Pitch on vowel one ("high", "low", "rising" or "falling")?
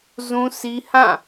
high